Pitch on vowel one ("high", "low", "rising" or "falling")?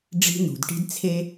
high